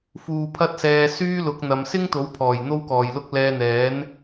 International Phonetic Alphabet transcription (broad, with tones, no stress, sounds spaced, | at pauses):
f uː˨ pʰ ɐ˥ t̚ s ɛː˧ s yː˥ l ʊ˨˥ k̚ n̪ ɐ˨˧ m s ɪ˥ ŋ t̪ o˨˥ w pʰ ɔː˨˩ j n̪ o˥ w k ɔː˨ j l ʊ˥ k̚ l ɛː˧ n̪ ɛː˨˥ n